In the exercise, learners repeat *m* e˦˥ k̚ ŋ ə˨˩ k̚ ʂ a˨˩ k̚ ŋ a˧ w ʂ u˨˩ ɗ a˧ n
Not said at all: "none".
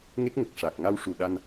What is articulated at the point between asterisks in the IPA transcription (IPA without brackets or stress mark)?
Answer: ŋ